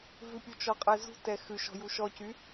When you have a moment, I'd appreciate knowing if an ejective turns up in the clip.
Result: yes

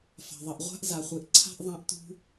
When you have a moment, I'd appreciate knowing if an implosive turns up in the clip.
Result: no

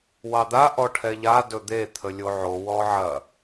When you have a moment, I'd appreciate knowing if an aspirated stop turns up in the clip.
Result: yes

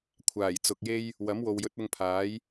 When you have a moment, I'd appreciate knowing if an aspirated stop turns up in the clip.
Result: yes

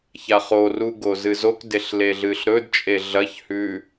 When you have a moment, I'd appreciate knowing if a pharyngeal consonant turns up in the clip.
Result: no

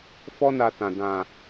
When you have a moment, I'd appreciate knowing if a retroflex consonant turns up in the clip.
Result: no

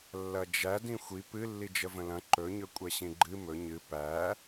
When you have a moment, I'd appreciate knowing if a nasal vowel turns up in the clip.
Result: yes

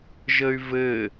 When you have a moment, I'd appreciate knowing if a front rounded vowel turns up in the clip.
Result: yes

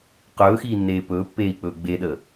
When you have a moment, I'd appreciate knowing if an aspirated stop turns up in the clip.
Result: no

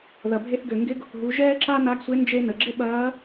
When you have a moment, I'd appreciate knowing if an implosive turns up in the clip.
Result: yes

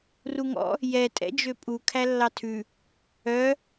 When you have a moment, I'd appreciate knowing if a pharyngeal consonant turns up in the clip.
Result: no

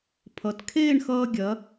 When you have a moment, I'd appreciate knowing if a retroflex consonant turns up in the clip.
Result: yes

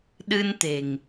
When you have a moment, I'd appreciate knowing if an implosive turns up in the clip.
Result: yes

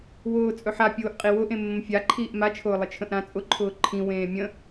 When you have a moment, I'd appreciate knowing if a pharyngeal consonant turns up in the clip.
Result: yes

